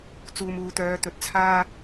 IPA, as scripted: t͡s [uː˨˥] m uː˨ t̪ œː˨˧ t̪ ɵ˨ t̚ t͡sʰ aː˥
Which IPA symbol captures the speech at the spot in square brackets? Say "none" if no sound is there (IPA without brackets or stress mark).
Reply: uː˨